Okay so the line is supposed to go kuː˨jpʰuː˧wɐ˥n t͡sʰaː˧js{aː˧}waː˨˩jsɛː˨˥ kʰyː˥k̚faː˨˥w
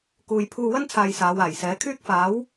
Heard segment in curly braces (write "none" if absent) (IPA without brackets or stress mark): aː˨˧